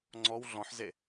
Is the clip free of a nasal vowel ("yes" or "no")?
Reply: no